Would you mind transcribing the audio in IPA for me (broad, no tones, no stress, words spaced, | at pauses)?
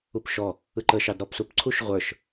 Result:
upʃɔ | ɯǃə ʃɑdɾɔpsupǀʰuʃ ʁʷə˞ʃ